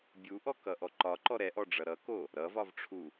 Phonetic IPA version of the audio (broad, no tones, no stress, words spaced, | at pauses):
bʲuʔɔkʌʔɔ ǃɒǃɔ ɾɛʔɔɖ͡ʐʌ ɾʌko | ɾʌvɒvʈ͡ʂʰu